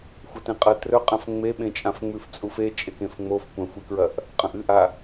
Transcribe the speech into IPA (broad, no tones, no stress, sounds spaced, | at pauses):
xʷ ɐ t ẽ qʼ ɐ t r ɵ qʼ ã f ŋ͡m e ɓ ẽ t͡ʃʼ ã f ŋ͡m ʉ f t͡sʼ u f e t͡ʃʼ e k ẽ f ŋ͡m o f kʷ ɐ̃ xʷ i k ɹ ɐ ʔ | qʼ ɐ̃ ʔ ɨ ʔ a